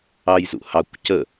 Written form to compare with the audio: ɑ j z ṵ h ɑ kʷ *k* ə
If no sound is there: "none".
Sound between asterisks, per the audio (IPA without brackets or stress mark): c